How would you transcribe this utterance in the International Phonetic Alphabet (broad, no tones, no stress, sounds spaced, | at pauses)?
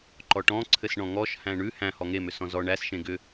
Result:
ǃ ɔ ʈ ɔ̃ ǀʰ ɘ s ɳ ɔ̃ ŋ ɔ ʃ h æ̃ ɳ ʉ h æ̃ h ɔ ŋ e m ʏ s ɔ̃ z ɔ ɳ æ s ʃ ẽ ɡ ʏ